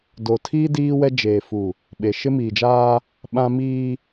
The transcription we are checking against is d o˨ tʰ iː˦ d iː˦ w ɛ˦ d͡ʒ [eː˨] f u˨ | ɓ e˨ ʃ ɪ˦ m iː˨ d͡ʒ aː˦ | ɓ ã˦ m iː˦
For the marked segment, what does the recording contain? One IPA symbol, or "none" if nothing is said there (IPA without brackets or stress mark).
eː˨